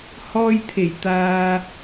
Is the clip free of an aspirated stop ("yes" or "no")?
no